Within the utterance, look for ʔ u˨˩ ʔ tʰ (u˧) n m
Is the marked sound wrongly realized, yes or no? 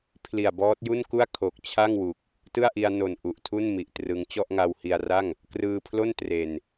yes